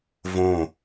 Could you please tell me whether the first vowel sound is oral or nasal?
nasal